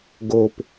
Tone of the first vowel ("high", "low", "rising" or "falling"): low